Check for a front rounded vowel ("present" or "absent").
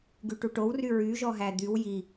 present